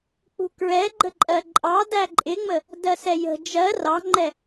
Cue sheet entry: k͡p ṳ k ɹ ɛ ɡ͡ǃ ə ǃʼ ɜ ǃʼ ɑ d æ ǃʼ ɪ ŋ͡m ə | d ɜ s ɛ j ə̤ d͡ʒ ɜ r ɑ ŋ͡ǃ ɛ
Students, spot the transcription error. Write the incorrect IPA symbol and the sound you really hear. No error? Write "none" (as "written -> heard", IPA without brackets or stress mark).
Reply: none